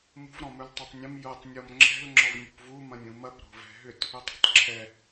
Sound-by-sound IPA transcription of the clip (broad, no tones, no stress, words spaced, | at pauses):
mṳv ɾɔ̃mɵltˤɐtˤnʲɐ̃m jotˤ nʲɔmŋ͡ǁɛ̤l ŋ͡ǁɔvnʲṳpvu mɐ̃nʲũmɐp ɾo̤vɛ̤ɦʏt | ʏtˤo̤tˤǁʰɛ